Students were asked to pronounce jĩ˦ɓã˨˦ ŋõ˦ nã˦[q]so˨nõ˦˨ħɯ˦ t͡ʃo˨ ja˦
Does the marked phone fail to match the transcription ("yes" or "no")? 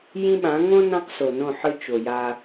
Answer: no